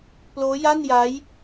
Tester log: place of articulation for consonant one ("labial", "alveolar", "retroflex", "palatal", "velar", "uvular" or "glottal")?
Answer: labial